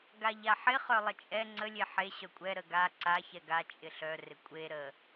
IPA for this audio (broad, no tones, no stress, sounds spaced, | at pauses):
ɡ a ʎ a ħ ɪ χ œ lˠ ɪ t͡ʃʼ ɛ ŋ͡ǀ ə lʲ e ħ e ɕ œ kʷʼ ɛ ɾ ə ɡ a ǀ a ç ɛ ɡ a t͡ʃʼ ɪ ɬ œ r ɪ kʷʼ e ɾ ə